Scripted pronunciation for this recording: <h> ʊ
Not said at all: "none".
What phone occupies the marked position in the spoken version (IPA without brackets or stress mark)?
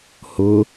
h